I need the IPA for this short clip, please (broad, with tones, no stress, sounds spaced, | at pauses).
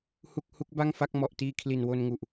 h u˥˩ k̚ h u˦˥ k̚ b a˥˩ ŋ f a˥˩ k̚ m ɔ˨˩ ʔ t iː˧ kʰ l i˨˩ n w o˧ n ŋ u˨˩ ʔ